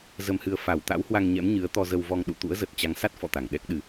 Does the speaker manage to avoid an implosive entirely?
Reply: no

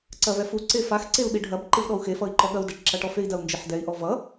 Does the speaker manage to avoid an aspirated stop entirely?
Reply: yes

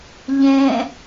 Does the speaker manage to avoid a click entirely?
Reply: yes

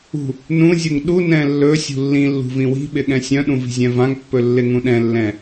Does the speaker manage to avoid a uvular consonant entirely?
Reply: yes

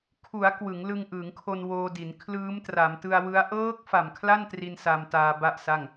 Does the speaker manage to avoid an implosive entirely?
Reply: yes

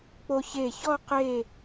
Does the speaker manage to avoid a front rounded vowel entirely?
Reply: yes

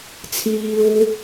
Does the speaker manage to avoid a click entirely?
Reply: yes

